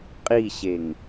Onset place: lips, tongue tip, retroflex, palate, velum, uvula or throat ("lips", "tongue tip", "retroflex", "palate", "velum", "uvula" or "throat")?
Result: uvula